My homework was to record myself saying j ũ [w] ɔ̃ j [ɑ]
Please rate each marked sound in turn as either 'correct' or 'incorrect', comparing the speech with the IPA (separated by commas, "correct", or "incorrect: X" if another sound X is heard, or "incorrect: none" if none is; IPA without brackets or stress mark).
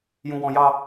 correct, correct